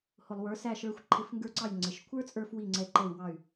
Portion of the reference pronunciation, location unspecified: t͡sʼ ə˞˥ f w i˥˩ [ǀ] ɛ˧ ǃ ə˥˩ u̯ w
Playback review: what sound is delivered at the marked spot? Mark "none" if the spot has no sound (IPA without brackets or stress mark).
ŋ͡ǀ